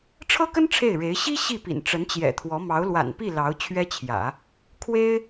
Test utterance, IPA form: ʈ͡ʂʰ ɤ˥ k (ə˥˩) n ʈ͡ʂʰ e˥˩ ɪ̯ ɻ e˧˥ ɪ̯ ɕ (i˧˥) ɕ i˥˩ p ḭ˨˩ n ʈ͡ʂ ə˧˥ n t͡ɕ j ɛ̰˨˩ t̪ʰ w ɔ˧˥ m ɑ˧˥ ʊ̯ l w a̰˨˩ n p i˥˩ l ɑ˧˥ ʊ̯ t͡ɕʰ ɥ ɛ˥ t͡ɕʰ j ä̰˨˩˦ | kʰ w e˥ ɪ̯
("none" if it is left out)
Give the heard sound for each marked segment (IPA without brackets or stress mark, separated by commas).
ə˥, i˥